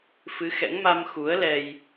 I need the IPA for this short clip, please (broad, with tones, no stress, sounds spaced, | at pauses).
f ɨ˨˦ x ɛ̰˧˥ ŋ m a˧ m x u˨˦ ə̯ l ɛ˧ j